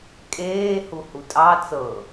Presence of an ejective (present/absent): present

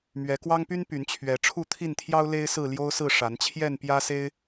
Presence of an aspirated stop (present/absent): present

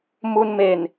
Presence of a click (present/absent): absent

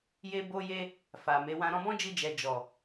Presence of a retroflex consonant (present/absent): absent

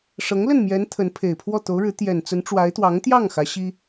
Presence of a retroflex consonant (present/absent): present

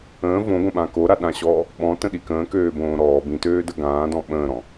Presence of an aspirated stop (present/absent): absent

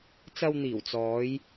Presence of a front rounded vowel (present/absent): absent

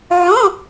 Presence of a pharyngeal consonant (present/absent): present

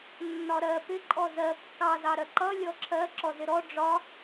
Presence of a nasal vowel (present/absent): absent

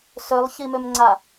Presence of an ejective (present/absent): absent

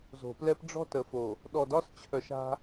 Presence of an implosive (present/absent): present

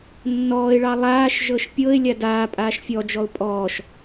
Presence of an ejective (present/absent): present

